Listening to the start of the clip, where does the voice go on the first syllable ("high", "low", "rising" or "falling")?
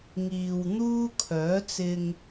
low